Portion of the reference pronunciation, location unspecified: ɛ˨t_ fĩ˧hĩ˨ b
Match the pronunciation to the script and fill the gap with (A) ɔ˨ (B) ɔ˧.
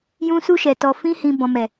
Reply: A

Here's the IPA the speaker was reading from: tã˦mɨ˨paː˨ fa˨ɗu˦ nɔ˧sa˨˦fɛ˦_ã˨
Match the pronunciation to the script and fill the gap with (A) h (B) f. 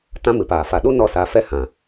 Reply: A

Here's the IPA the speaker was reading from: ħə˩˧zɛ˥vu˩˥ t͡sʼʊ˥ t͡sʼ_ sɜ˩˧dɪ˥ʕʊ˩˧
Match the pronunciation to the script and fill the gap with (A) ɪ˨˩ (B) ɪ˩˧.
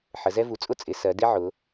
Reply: B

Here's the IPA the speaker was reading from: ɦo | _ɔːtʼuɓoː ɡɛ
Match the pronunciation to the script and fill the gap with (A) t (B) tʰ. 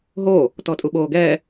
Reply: A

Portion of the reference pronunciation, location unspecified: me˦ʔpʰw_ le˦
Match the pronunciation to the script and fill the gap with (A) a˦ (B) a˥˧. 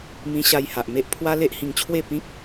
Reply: A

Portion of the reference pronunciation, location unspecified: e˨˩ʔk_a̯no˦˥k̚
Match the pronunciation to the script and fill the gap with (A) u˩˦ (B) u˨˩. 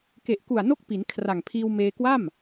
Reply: B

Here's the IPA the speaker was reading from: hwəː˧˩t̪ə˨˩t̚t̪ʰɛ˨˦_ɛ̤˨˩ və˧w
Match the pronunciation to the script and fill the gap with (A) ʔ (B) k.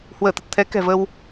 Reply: B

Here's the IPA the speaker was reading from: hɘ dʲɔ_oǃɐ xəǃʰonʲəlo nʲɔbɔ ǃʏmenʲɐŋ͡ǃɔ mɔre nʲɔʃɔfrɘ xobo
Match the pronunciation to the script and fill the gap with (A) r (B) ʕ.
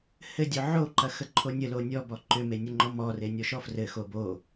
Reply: B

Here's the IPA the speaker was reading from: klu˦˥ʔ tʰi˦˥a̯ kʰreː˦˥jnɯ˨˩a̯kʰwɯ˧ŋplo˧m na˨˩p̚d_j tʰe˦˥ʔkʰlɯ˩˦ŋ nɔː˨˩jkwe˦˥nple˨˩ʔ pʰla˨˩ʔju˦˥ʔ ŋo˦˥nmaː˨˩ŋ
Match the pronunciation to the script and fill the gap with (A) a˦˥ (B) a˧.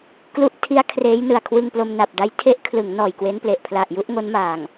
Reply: A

